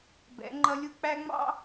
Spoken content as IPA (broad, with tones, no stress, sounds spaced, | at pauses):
b ɛ̰˨˦ ŋ͡ǃ ʌ˦ lʲ u˦ k͡p æ˦ ŋ͡m ɑ̰˦